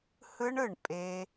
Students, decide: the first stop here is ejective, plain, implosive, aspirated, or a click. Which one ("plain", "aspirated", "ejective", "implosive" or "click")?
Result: ejective